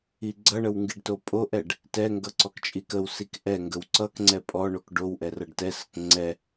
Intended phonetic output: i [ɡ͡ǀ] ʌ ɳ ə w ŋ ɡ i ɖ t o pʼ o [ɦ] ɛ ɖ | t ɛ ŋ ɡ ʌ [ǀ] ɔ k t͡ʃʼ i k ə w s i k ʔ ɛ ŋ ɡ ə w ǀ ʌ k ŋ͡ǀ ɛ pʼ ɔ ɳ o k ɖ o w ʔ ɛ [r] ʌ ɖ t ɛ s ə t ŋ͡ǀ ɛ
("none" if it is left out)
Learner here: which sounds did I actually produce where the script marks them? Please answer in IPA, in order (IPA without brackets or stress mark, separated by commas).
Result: ɡ͡ǀ, ʔ, ǀ, r